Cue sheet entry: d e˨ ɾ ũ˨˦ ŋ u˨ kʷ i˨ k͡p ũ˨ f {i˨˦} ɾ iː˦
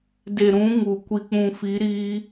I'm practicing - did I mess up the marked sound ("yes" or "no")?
no